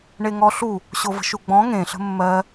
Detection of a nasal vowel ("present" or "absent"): present